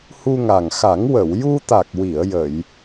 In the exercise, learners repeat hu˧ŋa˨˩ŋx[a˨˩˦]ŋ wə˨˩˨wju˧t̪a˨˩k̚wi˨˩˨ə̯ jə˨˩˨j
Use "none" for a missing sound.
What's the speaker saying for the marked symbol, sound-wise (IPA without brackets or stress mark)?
a˨˩˦